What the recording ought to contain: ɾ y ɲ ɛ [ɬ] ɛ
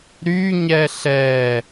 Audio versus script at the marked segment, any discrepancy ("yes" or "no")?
no